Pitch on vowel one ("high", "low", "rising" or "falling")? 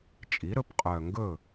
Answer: rising